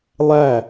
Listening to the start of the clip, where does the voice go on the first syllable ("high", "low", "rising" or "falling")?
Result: falling